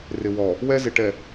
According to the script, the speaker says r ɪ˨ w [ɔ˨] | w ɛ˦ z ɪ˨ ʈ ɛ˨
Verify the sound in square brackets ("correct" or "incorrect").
correct